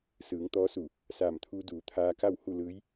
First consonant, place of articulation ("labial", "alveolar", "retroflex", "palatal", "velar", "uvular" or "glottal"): alveolar